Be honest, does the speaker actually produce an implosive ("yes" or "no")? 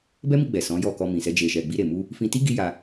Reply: no